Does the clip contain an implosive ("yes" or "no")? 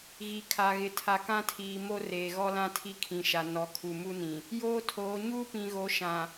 no